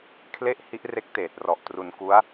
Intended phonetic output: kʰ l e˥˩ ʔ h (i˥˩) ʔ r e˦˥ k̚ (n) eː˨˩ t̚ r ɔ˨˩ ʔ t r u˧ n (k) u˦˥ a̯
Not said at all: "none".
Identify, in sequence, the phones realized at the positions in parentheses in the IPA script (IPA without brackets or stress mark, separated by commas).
i˦˥, t, k